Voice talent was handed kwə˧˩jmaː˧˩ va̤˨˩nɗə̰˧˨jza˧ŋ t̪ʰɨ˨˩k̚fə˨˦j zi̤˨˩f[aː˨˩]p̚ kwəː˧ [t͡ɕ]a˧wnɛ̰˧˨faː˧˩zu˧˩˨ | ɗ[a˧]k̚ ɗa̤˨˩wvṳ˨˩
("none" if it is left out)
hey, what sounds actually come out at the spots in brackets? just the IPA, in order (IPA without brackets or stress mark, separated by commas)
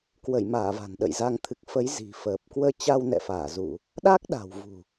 əː˨˩, t͡ɕ, a˦˥